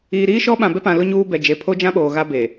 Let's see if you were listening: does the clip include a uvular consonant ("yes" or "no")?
no